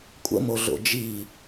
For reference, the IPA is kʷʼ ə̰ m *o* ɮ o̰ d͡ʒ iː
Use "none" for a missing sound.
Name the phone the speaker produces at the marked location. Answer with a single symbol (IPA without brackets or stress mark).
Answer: o